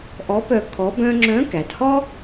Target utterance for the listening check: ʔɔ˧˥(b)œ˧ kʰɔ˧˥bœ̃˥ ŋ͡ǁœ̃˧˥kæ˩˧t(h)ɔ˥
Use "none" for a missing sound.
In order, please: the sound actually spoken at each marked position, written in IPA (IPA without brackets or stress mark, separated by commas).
p, h